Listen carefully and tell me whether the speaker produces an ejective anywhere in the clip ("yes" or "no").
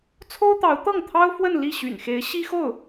no